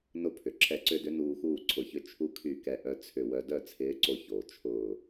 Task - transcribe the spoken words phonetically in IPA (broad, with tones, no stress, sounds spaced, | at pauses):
n ʊ˧ pʰ ʏ˩ ǁʰ ɛ˧˩ ǀ ʏ˧ d ʏ˨˥ n uː˧ x uː˥˩ ǀʰ ʊ˧˩ ç ʏ˥˩ t͡ʃʰ u˧ kʰ y˧˩ k ɛ˧˩ ʔ œ˧ t͡sʰ ʏ˧˩ w œ˧ d œ˥˩ t͡sʰ ɪː˨˥ ǀ o˧ ç oː˩ t͡ʃʰ ʊː˧˩